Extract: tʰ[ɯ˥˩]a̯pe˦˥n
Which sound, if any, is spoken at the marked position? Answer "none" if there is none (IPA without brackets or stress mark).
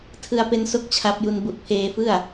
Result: ɯ˧